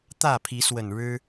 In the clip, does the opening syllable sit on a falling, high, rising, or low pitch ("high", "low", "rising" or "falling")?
falling